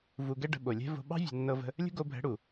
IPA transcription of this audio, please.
v u˧ ɡ ɛ˦ ɖ ə̤˧ ɓ o˨ lʲ ɛ̤˦ v o̤˧ ɓ ɑ̤˦ vʲ ṳ˨ nː ɤ˧ v ə̤˧ | lʲ ə̤˦ ɡ o˧ bʱ ɛ̤˨˦ ɽ u˨

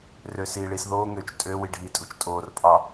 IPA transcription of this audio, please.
r øː s iː ɭ iː s ð oː ŋ ø t͡ʃ tʼ ø w i ɖʱ iː tʼ u t͡ʃ tʼ oː r pʼ ɑ

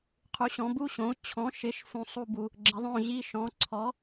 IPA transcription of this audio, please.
qʰ u˩˥ ɕ ɔ̃˩˥ b u˧˥˧ ɕ õ˩˥ u̯ t͡ɕʰ ɔ̃˩˥ ʃ ɪ˩˥ ʃ f ũ˨ sˤ u˦˨ b u˨ | ɡ͡ǁ ɪ˩˥ ðˤ õ˦˨ ʑ i˧˥˧ ʃ ɔ̃˩˥ ǀʰ ɔ˩˥

